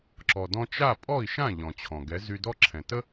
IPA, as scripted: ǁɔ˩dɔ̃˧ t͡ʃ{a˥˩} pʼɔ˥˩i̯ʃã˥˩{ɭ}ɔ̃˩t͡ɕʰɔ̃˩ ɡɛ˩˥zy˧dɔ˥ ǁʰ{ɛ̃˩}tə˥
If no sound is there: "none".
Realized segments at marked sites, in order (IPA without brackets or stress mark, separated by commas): a˥˩, ʎ, ɛ̃˩